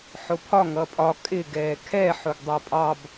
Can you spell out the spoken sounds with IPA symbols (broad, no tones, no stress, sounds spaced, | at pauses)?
ħ ʊ pʰ ɒ ŋ ʌ pʼ ɒ kʼ ɪ ɡ ɛː kʰ ɛ ħ ʊ ɡ dˤ ɜ pʼ ɑ b